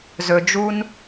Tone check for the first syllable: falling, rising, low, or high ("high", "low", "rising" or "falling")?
low